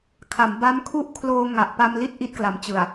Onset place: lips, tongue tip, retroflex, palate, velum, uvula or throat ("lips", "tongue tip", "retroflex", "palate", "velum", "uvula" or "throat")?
velum